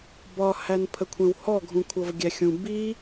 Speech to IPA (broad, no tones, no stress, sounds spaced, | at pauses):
b ɒ h æ n pʰ ə kʷʰ ɛ̃ w h ɔ ɡʱ ũ kʷʰ ʌ v ɡʲ æ xʲ ũ b i